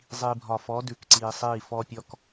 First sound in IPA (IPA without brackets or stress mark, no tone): zˤ